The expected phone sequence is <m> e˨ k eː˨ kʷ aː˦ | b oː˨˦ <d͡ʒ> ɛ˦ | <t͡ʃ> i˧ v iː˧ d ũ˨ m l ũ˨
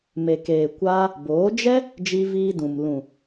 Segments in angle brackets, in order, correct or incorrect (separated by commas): correct, correct, incorrect